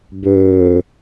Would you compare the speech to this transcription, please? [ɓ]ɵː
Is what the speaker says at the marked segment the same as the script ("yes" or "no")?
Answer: no